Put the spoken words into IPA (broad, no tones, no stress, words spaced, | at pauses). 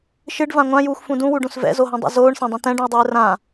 ʃɨɖvã ŋʷãjuːxʷfũ dũwuɖũs vɛ̰zoɦõdˤṵ zoːɳsãdˤũ t̪ɛ̃ɖũe̯dˤɨː rã